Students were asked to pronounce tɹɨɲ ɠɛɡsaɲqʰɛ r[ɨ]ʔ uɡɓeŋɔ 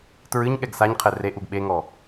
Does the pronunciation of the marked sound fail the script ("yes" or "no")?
yes